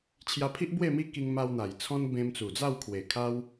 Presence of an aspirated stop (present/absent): present